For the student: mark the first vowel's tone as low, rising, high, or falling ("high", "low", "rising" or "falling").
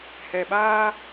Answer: low